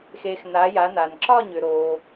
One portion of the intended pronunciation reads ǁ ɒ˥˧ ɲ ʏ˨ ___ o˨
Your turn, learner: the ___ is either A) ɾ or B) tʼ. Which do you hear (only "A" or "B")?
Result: A